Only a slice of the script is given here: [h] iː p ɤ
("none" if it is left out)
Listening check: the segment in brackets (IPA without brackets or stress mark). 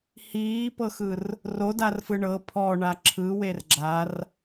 h